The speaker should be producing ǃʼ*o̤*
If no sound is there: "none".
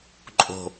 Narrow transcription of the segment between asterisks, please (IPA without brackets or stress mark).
o̤